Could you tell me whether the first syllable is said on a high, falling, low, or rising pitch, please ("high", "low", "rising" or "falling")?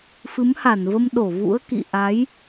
rising